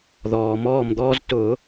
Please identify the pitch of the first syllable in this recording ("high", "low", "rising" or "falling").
low